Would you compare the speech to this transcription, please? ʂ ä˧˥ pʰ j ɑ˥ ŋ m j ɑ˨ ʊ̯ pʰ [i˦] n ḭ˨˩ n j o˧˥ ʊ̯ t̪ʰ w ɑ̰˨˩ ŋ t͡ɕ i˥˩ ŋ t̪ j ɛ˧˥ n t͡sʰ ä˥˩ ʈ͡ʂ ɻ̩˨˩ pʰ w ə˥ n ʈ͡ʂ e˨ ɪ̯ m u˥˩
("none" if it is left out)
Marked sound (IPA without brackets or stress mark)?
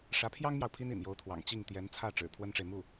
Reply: i˥